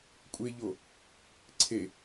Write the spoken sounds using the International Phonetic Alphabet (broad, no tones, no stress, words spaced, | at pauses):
kʷʼeʎo | ǀʰe